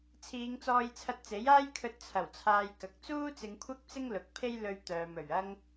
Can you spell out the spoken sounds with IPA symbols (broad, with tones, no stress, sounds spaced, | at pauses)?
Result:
t͡sʰ iː˨˧ ŋ t͡s ɔː˧ j t͡sʰ ɐ˧ t̚ t͡s e˨˥ j aː˥ j kʰ ɵ˧ t̚ t͡sʰ ɐ˨˩ w t͡sʰ aː˧ j k ɐ˨˥ k̚ t͡s uː˥ t͡s ɪ˨˧ ŋ kʷʰ ɐ˥ k̚ t͡s ɪ˥ ŋ l ʊ˨˥ k̚ pʰ e˥ j l ɵ˧ ɥ t̪ œː˨ m ɵ˨˩ ɥ ɐ˥ ŋ